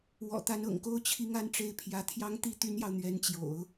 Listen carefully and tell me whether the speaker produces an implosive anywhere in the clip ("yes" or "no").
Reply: no